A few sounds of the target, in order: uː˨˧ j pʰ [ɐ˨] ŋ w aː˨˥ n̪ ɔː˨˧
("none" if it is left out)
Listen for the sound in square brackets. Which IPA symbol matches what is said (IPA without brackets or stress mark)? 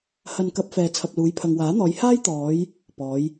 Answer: ɐ˨